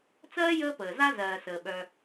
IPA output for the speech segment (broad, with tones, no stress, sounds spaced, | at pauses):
t͡s ɜː˥ j əː˦ p əː˩ z a˦ z ɜː˩ s əː˩ ɓ œ˨